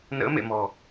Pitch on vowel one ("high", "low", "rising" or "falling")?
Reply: rising